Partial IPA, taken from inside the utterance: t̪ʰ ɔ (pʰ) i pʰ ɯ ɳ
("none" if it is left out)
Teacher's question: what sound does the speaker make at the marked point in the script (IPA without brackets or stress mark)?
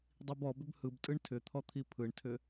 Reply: t̪ʰ